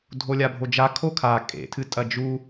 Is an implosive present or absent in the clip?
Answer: absent